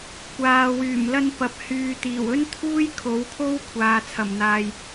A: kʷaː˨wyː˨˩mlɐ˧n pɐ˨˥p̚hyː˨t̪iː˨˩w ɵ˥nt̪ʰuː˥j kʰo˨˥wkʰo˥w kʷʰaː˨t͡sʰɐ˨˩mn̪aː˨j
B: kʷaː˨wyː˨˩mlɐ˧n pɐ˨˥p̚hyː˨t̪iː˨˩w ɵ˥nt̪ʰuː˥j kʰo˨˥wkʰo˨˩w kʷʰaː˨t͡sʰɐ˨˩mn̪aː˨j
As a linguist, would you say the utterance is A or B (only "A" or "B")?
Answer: A